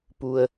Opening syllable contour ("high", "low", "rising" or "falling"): low